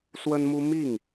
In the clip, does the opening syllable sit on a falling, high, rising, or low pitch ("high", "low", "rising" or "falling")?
high